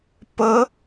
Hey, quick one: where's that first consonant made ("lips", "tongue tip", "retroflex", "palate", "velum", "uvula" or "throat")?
lips